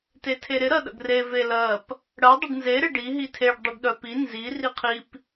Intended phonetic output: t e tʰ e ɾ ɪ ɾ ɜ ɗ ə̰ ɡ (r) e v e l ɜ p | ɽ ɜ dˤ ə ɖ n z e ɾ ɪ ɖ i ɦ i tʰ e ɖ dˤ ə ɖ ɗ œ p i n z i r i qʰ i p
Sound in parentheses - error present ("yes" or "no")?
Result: no